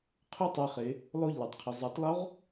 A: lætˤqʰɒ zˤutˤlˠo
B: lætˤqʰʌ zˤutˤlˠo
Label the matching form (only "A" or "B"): A